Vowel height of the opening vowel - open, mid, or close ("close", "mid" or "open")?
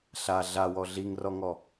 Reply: open